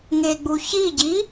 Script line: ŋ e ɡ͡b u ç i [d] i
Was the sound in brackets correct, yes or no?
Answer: no